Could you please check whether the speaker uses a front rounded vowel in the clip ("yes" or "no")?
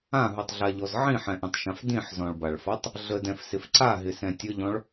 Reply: no